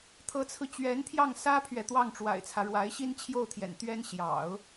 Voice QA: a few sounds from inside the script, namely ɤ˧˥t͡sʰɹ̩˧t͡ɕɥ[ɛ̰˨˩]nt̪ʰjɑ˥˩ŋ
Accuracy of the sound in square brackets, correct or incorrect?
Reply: incorrect